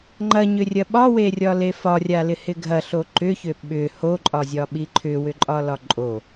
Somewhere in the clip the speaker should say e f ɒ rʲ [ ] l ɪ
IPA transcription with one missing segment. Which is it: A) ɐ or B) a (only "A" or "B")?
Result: B